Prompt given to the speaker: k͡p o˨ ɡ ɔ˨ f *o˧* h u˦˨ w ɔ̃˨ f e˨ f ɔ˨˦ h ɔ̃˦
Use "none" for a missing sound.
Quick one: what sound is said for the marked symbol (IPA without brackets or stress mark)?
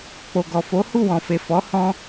o˨˦